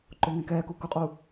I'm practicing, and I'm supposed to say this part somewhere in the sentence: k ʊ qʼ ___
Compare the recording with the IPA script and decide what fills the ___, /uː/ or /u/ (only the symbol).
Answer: u